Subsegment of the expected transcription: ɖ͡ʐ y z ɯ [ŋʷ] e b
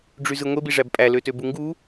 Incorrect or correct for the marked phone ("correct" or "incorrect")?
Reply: correct